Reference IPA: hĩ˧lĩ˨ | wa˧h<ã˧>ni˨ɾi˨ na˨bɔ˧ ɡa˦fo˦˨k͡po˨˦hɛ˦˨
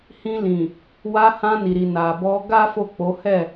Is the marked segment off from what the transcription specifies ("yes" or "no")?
no